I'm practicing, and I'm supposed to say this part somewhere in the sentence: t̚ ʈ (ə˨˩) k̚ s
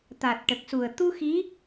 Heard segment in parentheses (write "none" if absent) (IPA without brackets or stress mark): ə˨˩